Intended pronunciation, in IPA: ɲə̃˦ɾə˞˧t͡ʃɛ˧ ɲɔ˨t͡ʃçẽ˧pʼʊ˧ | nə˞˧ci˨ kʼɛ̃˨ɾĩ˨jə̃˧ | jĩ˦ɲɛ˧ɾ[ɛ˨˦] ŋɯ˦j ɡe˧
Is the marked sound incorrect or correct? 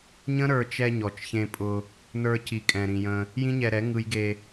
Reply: correct